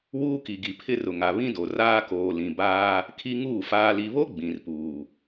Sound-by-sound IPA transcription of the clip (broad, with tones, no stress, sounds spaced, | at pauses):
w uː˦ k i˨ ɡ i˨ pʰ ɪ˦ r ʊ˨ ŋ a˨ β ĩ˦ d o˨ r aː˦ k oː˨ l ĩ˨ b aː˦ | kʰ i˦ ŋ uː˦˨ f aː˨ l i˨ β o˦ ɡ͡b ĩ˨ r p uː˨